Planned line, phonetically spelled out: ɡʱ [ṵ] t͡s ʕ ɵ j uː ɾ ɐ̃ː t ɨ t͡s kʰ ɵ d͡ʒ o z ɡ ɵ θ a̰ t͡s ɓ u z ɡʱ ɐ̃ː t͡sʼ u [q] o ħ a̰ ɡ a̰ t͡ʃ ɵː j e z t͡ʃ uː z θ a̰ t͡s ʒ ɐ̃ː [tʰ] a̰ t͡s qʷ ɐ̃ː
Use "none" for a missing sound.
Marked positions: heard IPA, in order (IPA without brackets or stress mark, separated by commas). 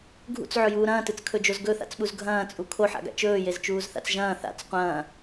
ṵ, kʰ, θ